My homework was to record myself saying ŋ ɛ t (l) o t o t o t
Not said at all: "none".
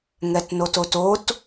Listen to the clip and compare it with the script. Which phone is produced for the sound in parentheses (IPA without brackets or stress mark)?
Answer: n